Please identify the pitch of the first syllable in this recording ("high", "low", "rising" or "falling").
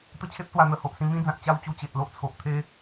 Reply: falling